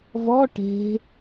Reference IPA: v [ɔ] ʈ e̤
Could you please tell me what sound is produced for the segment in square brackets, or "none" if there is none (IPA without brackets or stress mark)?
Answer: ɔ